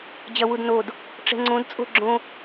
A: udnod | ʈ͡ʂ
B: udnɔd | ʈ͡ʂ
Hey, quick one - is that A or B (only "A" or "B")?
A